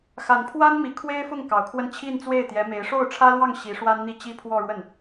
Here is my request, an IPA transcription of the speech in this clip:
x a˨˩ n pʰ w a˥ n m i˨˩ kʰ w e˥ ɪ̯ f ʊ˥˩ ŋ k ɑ˨˩ ʊ̯ kʰ w ə˥˧ n t͡ɕʰ i˥˧ n t͡s w e˥˩ ɪ̯ t̪ j ɛ˧˥ m e˧˥ ɪ̯ ʂ o˥˩ ʊ̯ ʈ͡ʂʰ ä˥ l w ɑ˥˩ ŋ ɕ i˧˥ ʂ w a˥ n n̪ i˥˩ t͡ɕ i˥ pʰ w ɔ˥˧ ɻ w ə˥˩ n

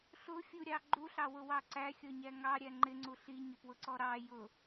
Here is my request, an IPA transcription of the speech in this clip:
ɬ ʊ fʲ u ɾʲ ɑ ɡ͡ǃ u ɬ ɑ w ʊ w ɑ ǀ æ xʲ ɔ ɲ æ ŋ ɑ ɾʲ æ ŋ͡ǃ ɪ ŋ͡ǀ u ɬ i ɲ ə p w ʊ ǀ ɔ ɾ ɑ j ʊ

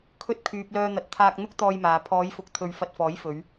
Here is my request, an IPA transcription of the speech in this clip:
kʰ ɵ˧ t̚ kʰ yː˨ p̚ l œː˧ n̪ ɐ˨˥ t̚ t̪ʰ aː˧ k̚ n̪ ʊ˥ k̚ t̪ ɔː˧ j m aː˨ pʰ ɔː˨˧ j f ʊ˨ k̚ t̪ʰ ɵ˧ ɥ f ɐ˧ t̚ f ɔː˨˥ j f ɵ˨˧ ɥ

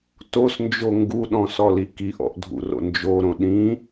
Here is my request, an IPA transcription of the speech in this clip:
t o s n d͡ʒ o ŋ ɡ u ɗ ɔ̃ s ɔ l i k i ʔ ɔ̰ ʔ dʱ ṵ r o̰ n d͡ʒ o ɾ õ ɗ ĩ

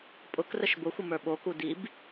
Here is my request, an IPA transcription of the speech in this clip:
pʼ ʊ k r ə ʃ b ʊ xʷ ə m ə˞ ɓ o k u d i b

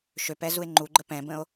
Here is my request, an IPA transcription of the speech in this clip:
ʃ ø p ɛ z u e̯ ŋ͡ǃ u ɡ͡ǃ ə p ɛ̃ b ə̃ o̯

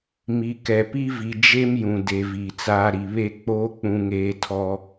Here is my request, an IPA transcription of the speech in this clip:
m i˨ k ɛ˨ p i˦ v i˨ d͡ʒ e˦ m j ũ˨ d e˨ v iː˨ t͡s aː˦ ɾ i˨ β e˦ k͡p oː˦ k͡p ũ˦ ŋ eː˦ tʰ ɔ˦

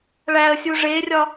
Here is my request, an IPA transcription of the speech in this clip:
ɭ æ ə̯ sʲ u ʐ e rʲ ɒ

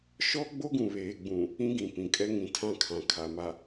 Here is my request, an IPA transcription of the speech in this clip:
ʃ ɔ˦ ɡ͡b o˦ ɡ ũ˨ β eː˨ ɡ͡b ũ˨ | ĩ˦ ɡ ĩ˨ p ĩ˨ kʼ ɛ˦ ŋ ĩ˨ tʰ ã˦ kʰ ã˨ kʰ a˨ m a˨

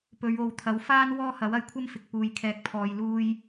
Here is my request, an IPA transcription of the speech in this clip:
p ɵ˨˧ ɥ o˨ w t̪ʰ ɐ˨˥ w f aː˥ n w ɔː˥ h ɐ˨˥ w ɐ˧ j kʷʰ ɐ˥ m f ɪ˨ k̚ p uː˨ j kʰ ɛː˨ k̚ pʰ ɔː˨ j l uː˧ j

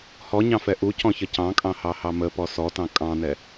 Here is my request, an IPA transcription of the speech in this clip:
h ɔ ɲ ɑ̃ f ɛ ʔ u c ɔ̃ ç ə c ɑ̃ kʼ ɑ̃ h ɑ h ɑ m ə p ɔ s ɔ t ɑ̃ kʼ ɑ̃ n ɛ

